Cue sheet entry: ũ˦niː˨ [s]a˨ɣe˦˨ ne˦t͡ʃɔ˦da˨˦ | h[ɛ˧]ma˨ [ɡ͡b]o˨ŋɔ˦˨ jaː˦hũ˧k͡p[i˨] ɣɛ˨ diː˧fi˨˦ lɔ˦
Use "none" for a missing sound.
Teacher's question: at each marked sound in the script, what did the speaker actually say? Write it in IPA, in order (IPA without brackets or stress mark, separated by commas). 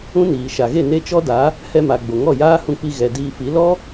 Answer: ʃ, ɛ˧, ɡ͡b, i˧